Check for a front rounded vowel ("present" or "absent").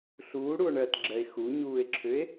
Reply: present